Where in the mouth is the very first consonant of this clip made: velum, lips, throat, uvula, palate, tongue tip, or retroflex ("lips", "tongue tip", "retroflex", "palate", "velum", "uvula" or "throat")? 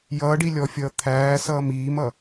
palate